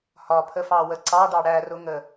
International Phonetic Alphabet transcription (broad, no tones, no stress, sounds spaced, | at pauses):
h ɒ pʰ ə f ɑ w ə ǀ ɑ ɖ ɑ ɽ æ r ʊ ŋ ə